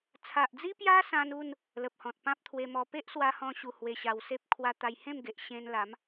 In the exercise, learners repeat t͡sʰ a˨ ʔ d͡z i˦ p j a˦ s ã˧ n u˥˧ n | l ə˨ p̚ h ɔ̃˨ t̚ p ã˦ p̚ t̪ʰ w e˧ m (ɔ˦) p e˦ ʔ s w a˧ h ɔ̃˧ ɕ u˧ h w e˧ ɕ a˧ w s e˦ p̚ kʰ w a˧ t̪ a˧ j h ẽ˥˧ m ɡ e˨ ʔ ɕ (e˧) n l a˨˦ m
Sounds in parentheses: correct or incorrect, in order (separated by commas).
incorrect, incorrect